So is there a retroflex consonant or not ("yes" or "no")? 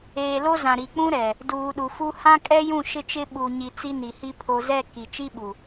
no